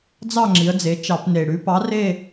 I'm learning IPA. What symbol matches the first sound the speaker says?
d͡z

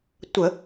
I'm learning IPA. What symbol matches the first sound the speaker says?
tʷ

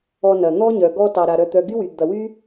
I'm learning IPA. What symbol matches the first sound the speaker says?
ɔ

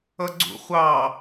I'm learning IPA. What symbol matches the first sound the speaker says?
ʌ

